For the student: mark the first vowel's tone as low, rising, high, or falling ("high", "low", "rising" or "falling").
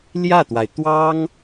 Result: falling